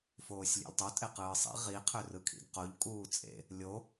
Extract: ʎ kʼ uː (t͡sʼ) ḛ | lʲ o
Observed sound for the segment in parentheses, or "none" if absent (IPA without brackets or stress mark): t͡sʼ